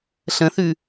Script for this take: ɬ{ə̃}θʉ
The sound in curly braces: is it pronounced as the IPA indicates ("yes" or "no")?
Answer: yes